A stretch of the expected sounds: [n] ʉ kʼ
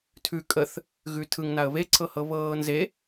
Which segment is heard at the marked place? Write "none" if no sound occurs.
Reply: tʰ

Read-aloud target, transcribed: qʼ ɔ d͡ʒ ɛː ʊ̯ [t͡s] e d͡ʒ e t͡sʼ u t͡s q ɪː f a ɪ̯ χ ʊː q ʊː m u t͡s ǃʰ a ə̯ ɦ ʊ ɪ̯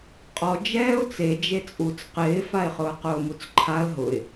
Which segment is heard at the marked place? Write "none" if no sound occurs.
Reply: t͡s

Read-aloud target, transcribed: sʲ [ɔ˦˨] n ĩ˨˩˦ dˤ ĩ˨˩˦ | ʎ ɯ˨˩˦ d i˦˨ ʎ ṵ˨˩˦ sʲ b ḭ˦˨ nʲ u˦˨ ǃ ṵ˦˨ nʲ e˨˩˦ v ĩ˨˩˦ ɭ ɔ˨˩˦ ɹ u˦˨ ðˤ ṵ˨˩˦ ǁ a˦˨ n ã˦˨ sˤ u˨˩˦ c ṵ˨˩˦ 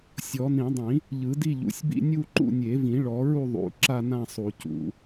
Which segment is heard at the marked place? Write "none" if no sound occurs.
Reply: ɔ˨˩˦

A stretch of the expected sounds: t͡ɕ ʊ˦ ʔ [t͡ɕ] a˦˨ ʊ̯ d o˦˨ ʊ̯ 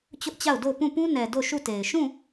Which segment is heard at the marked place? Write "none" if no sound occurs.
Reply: t͡ɕ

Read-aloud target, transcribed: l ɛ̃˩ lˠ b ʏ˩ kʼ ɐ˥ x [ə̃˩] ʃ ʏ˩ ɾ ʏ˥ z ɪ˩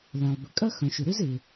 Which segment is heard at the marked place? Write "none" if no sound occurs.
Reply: œ̃˩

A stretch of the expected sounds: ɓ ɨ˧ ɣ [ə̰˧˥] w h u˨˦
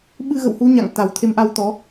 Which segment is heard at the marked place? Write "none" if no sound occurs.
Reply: ə̰˧˨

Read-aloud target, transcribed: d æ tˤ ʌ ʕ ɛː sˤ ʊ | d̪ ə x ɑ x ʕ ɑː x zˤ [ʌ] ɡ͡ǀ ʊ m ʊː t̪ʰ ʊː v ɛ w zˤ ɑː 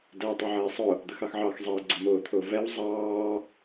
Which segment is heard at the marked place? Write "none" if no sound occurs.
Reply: ʌː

